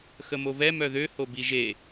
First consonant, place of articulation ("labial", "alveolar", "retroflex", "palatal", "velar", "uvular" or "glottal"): velar